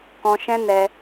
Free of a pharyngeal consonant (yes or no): yes